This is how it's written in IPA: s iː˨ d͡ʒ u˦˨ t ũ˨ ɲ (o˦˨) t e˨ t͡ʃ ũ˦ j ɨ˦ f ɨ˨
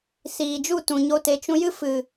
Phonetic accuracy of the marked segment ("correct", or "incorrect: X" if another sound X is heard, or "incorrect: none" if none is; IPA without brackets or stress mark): incorrect: o˧